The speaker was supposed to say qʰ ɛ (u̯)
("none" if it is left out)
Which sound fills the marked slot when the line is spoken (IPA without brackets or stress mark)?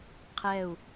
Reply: u̯